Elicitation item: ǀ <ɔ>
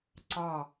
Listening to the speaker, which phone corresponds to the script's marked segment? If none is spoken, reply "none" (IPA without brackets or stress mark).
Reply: ɑ